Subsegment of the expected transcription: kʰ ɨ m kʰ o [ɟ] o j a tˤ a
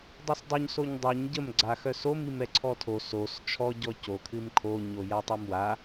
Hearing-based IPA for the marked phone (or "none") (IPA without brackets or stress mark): ɲ